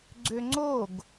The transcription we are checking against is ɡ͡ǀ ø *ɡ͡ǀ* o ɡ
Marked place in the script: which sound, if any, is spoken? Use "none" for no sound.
ŋ͡ǀ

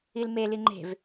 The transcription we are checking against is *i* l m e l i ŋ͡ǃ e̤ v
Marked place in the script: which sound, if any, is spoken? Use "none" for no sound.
i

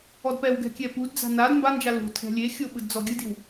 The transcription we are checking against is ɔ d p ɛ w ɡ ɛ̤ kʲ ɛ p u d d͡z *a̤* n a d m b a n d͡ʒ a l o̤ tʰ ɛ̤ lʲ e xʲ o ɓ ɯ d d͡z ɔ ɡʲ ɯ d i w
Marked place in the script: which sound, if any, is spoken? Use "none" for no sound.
a̤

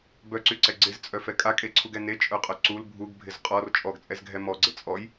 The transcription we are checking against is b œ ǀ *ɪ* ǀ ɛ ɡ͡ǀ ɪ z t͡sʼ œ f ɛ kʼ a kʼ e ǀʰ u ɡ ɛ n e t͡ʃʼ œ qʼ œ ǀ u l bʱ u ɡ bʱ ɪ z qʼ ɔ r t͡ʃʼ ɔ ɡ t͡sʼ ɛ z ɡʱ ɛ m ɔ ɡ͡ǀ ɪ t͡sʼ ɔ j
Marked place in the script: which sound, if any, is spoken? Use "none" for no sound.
y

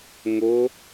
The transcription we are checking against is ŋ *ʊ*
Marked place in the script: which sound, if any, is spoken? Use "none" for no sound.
ʊ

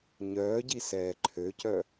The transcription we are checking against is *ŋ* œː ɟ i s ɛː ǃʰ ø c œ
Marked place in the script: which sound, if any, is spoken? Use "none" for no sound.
ɲ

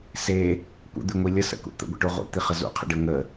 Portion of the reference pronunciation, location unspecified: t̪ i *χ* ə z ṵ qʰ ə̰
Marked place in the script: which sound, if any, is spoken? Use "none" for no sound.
χ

